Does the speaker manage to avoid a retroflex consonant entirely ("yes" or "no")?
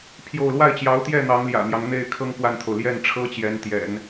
no